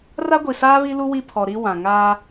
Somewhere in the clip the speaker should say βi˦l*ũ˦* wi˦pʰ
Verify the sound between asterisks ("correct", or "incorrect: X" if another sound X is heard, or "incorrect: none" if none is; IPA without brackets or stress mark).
incorrect: u˦